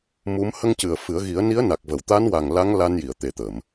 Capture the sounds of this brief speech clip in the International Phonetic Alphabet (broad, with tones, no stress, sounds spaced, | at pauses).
m u˧˥ m h ə˧ ŋ c ɨ˨˩ ə̯ f ɨ˨˩˦ ə̯ ɣ i˨˩˦ ə̯ n i˧˥ ə̯ n a˨˩ k̚ v ə˨˩˨ w t̪ a˧˥ n w a˨˩ ŋ l a˧˥ ŋ l a˧ n j i˨˩˨ ə̯ t̪ e˨˩ t̪ ə˨˩˨ m